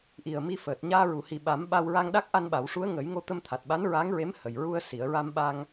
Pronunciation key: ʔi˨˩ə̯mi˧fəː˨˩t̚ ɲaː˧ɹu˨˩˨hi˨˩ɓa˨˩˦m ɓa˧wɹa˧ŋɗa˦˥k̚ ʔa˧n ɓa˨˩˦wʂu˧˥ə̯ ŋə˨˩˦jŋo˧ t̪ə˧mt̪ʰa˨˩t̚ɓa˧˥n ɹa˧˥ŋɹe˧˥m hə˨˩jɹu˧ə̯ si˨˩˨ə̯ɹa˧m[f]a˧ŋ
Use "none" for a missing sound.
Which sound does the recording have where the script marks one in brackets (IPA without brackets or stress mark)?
ɓ